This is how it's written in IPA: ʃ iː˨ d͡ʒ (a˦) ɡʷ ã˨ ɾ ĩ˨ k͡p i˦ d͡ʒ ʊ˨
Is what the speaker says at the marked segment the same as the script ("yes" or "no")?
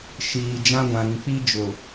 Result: no